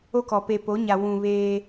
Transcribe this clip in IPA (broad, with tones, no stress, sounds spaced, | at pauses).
o˦ k ɔ˨ p e˨ p o˨˦ ɲ a˨ w ũ˨ β eː˦